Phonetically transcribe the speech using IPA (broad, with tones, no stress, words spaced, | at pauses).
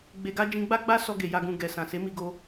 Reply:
ɡ͡be˨ɡa˧ d͡ʒĩ˧ɡ͡ba˦ɡ͡ba˦ sɔ˧ɡe˨ ja˨ɡũ˨ ɡɛ˨sã˨se˨˦ mi˧ɡo˧